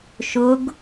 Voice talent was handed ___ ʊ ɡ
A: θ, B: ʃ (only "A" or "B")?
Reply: B